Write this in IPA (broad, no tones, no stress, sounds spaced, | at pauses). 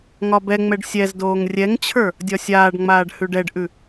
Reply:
ŋ ɒ b ɛ ŋ͡m ɛ ɖ sʲ ɛ z d oː ŋ rʲ ɛ ŋ t͡ɕʰ ə˞ | dʲ ɒ sʲ aː ɖ ŋ͡m aː ɖ h ʉ ɖ ɛ ɖ ʔ ʉ